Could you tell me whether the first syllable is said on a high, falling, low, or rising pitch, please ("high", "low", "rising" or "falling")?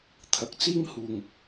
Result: low